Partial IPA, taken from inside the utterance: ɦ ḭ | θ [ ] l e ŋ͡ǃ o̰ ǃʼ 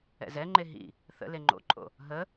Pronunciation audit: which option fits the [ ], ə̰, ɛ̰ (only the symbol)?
ə̰